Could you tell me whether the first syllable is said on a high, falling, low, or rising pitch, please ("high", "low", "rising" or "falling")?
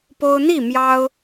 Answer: high